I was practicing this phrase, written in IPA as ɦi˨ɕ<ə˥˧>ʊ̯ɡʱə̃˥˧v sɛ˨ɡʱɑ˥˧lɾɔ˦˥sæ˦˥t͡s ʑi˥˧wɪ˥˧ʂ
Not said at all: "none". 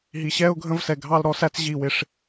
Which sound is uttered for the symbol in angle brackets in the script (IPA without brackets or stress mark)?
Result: ɛ˥˧